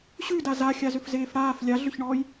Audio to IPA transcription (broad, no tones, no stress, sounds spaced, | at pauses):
ɕ ʉ d a z a xʲ a z ʏ f z eː f ɽ aː f lʲ a ɮ ʏ ç ɳ ɔː j